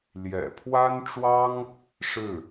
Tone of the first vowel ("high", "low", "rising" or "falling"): low